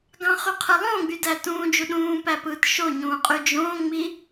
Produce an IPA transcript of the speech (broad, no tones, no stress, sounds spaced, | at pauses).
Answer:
ɡ ɑ̃ χ y qʰ ɯ lˠ õː ɡ͡b y d æ t ũː d͡ʒ u ɗ ũː p æ p ɯː t ʃ o ɲ ũː qʼ y d͡ʒ õː ŋ͡m i